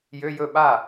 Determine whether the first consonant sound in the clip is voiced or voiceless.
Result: voiced